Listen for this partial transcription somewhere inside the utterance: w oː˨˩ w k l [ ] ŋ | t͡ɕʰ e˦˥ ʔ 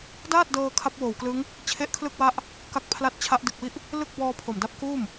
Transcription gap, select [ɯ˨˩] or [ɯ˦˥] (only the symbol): ɯ˦˥